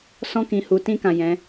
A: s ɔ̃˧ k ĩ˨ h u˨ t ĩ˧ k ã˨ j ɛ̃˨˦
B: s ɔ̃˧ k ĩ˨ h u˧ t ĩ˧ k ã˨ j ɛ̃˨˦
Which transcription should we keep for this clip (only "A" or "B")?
A